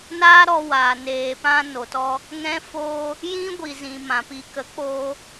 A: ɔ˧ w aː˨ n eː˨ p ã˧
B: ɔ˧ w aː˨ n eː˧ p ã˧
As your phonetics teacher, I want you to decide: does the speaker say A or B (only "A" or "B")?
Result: A